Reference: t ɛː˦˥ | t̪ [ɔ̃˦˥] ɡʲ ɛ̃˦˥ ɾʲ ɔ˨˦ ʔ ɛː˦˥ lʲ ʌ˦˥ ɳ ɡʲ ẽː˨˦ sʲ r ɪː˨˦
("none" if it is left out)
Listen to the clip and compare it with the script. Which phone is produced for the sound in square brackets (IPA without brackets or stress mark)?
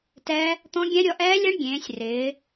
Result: ɔ̃˦˥